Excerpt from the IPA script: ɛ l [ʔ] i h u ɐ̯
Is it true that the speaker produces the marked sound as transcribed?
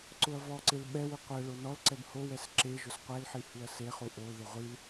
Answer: no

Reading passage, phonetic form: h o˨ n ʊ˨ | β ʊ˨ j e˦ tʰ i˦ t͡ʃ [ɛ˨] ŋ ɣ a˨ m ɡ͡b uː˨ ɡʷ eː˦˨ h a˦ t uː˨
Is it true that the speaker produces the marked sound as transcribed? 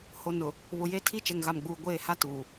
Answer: yes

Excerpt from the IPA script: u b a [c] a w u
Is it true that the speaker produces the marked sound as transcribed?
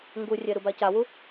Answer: yes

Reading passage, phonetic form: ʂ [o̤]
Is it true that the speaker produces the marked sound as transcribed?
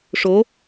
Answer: no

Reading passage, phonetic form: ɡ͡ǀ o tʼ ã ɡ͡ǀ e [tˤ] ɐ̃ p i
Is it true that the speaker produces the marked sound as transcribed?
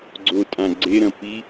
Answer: no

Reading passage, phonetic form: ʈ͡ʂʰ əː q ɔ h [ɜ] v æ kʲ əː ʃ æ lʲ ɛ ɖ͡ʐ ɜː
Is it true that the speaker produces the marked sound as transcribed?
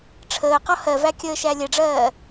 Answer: yes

